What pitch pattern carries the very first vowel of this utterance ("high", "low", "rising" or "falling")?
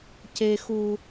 low